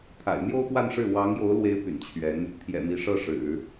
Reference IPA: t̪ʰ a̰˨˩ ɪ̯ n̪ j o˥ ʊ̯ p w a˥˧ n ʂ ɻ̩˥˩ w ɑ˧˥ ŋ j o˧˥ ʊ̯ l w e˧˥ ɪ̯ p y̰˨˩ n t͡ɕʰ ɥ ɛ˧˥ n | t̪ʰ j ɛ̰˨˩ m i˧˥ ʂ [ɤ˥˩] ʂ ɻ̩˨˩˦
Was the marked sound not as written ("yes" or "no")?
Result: yes